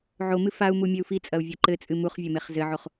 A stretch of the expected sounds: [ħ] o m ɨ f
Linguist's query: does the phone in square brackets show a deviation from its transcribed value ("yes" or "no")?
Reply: yes